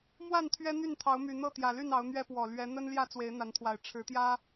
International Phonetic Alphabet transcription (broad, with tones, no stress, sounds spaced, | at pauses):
m w a˥˨ n t̪ʰ ɥ ɛ˦ n̪ y˥˨ n t̪ʰ ɑ˨˦ ʊ̯ m y˨˩ n̪ ɤ˥˨ t̪ j ä˨˩ l y˥˨ n ɑ˨˦ ʊ̯ n̪ ɥ ɛ˦ p w ɔ˨˩ l ɥ ɛ˨˦ n̪ ə˦ n l j ä˥˨ t͡s w e˨˦ ɪ̯ n̪ a˨˦ n t̪ʰ w a˨˩ ɪ̯ ʈ͡ʂʰ ɻ̩˨˦ t̪ j ä˦